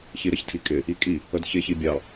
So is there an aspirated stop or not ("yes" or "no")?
yes